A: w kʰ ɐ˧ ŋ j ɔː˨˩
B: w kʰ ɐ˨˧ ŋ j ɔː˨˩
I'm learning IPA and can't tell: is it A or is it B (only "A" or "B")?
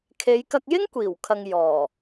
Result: A